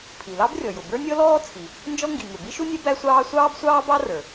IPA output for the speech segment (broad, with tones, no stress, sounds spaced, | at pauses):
pʰ i˩ l ɑ˥ b rʲ ɔ˩ j ʊ˩ b ə˞˥ nʲ ɔ˥ l ɔː˥ t͡sʰ i˩ | n d͡ʒ ɔ˥ ŋ ɡ i˩ ŋ ʊ˩ b i˥ ʃ u˥ nʲ ɛ˥ b æ˥ sʷ ɑː˥ sʷ ɑː˥ b sʷ ɑː˥ b ɑ˥ r ə˞˩